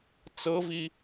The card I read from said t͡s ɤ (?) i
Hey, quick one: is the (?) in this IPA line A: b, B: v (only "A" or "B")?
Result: B